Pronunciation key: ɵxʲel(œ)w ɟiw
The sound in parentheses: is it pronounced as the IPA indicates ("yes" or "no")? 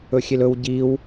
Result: no